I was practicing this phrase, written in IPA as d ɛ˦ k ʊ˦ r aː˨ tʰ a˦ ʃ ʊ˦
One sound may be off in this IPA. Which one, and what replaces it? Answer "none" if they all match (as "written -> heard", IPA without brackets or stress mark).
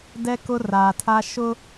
none